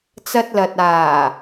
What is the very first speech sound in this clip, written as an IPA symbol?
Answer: t͡s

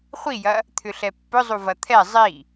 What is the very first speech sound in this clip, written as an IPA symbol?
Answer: χʷ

